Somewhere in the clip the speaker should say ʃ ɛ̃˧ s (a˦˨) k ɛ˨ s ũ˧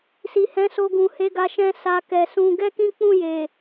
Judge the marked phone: incorrect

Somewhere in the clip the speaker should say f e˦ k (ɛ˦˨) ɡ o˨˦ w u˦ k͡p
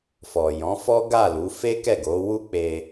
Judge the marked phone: correct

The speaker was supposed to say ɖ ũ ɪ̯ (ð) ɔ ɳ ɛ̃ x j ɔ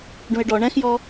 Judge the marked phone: incorrect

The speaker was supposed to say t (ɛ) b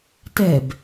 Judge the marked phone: correct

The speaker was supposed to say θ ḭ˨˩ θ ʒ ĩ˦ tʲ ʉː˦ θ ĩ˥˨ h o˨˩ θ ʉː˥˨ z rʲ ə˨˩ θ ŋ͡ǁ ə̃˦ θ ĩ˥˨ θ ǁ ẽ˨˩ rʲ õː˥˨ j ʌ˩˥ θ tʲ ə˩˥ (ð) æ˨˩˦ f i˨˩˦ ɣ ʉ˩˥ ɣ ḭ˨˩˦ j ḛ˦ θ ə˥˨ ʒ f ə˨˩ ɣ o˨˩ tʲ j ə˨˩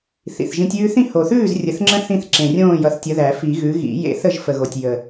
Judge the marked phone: correct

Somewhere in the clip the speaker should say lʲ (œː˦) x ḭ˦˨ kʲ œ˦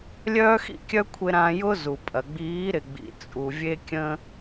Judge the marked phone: correct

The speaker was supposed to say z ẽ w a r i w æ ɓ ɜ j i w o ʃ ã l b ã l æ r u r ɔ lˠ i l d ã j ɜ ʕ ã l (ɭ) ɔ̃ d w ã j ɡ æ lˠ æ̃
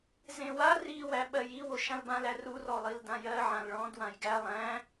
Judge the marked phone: correct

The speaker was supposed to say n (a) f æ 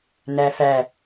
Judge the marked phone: incorrect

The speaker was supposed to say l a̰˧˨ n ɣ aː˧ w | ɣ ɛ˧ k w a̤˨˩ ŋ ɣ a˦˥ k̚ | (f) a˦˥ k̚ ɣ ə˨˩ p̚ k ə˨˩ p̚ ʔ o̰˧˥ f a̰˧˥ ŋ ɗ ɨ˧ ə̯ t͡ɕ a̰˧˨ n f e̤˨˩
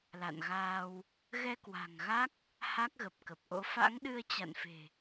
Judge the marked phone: incorrect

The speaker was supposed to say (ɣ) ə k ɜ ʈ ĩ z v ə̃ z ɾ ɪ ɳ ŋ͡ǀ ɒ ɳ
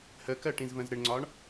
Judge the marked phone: incorrect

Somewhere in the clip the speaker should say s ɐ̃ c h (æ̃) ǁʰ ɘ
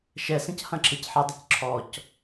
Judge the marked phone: incorrect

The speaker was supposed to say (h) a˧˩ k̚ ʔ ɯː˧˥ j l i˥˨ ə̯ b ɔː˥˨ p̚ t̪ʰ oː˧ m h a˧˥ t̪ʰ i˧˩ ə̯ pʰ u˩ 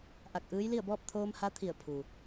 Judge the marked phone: incorrect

